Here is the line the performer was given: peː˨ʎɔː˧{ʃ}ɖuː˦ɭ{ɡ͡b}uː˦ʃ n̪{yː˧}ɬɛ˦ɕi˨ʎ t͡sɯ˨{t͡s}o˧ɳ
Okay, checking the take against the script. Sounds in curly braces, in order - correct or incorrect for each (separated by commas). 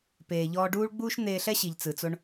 incorrect, correct, incorrect, correct